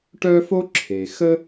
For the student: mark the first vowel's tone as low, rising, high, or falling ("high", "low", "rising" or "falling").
high